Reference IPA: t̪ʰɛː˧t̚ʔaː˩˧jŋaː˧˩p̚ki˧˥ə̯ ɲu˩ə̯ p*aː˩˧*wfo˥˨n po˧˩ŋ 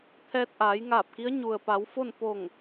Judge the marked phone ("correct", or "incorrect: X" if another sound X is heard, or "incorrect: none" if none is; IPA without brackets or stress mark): incorrect: a˩˧